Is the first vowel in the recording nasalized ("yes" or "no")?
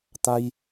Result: no